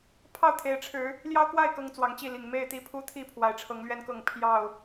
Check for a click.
absent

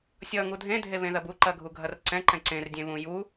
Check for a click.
present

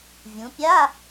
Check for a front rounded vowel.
absent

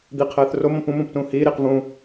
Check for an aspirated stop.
present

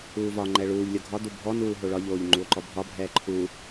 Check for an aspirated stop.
present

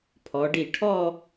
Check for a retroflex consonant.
present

